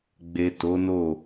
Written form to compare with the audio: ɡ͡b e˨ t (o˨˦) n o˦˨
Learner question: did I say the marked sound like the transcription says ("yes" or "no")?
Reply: yes